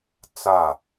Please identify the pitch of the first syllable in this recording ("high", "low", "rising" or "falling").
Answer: falling